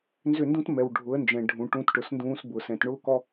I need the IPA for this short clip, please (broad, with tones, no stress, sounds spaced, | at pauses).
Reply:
n z ʏ˦˨ n d ũ˦ t m ɛ˨ w ɖʱ ʊ˨˦ ə̯ n d͡ʒ ɛ̃˨ ɖʱ ũ˨ ʈ ũ˧ t ʈ ʊ˨ s n d ũː˧ s b ʊː˨ s ɛ̃˦˨ t ɳ ʊː˦ k ɔ˦